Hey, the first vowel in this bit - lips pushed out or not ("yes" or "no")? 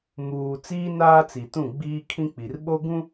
yes